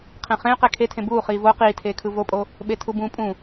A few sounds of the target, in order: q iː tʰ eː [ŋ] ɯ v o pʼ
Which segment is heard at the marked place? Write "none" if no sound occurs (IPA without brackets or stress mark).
kʰ